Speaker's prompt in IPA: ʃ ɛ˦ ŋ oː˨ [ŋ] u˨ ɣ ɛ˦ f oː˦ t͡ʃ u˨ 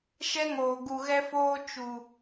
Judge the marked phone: incorrect: ɡ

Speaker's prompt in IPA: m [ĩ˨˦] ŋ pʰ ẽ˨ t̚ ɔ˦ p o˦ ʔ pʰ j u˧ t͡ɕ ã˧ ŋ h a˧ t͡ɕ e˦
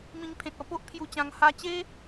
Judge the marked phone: incorrect: ĩ˧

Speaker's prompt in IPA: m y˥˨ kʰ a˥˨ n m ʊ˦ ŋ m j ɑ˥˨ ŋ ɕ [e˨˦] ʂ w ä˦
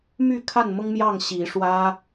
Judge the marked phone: incorrect: i˨˦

